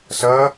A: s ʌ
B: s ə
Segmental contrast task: A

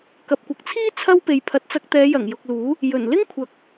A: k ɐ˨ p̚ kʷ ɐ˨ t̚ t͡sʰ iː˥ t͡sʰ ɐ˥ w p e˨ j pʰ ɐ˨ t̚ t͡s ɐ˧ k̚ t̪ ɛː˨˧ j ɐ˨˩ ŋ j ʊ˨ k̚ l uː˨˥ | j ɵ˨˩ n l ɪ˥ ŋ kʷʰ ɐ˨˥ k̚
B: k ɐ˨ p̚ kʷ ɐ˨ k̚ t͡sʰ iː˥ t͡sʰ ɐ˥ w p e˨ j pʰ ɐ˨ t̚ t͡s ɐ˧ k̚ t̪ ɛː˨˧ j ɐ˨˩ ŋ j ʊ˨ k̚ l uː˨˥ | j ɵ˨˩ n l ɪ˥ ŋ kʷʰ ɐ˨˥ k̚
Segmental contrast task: B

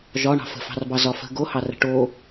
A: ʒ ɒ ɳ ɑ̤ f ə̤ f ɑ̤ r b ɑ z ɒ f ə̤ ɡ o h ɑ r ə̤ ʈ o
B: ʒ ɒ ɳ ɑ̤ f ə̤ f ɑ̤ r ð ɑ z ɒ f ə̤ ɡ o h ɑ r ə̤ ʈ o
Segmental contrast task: A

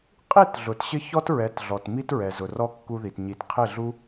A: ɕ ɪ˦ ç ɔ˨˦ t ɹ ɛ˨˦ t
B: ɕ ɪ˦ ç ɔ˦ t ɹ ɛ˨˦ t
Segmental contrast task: B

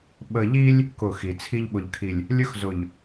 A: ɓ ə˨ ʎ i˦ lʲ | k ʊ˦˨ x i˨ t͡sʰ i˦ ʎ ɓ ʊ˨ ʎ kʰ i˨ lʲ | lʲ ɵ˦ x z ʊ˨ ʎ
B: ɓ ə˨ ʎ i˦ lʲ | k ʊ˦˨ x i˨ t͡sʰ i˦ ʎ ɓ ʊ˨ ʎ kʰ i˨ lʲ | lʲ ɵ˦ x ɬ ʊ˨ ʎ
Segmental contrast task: A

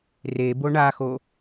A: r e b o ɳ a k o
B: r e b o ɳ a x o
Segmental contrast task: B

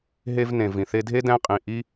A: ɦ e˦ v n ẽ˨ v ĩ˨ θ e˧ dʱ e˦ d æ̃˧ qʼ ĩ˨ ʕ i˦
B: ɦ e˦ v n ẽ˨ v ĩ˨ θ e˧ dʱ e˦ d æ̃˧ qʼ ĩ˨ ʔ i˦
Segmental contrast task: B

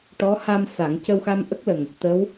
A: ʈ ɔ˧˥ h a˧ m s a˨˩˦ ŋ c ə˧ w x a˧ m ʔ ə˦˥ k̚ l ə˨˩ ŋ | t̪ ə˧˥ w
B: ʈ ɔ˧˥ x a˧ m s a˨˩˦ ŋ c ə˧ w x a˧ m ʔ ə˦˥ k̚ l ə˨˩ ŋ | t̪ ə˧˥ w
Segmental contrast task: A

